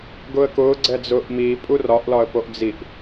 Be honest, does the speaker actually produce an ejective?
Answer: yes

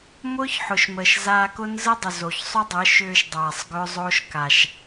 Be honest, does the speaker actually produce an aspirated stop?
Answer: no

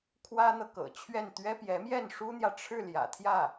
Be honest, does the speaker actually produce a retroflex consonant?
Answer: yes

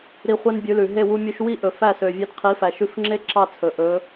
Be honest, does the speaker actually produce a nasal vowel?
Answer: no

